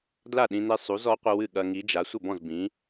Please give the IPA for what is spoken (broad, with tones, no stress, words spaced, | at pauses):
dla˥˩ɗĩ˧ne˧ sˤu˨˥z ɔ˨˥qʷɘ˧wɨ˥˩ ɠɐ˧ŋi˨˥d͡ʒa˨˥ sʷɘ˥˩bɔ̃˥˩z bĩ˨˥